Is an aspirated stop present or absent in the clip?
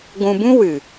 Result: absent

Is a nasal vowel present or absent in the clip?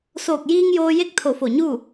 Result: absent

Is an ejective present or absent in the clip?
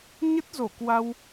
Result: absent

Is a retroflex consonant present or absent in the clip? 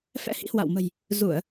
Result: absent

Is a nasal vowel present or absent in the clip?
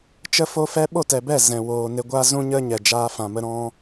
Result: present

